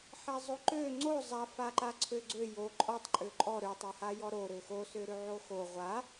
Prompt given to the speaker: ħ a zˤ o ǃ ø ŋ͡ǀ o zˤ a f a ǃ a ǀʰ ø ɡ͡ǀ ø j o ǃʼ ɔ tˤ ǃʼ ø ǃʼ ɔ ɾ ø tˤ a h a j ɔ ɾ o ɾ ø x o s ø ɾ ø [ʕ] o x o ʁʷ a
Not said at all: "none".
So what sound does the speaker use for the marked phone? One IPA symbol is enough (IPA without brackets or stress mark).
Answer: ʕ